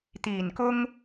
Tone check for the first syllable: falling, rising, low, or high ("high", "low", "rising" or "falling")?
low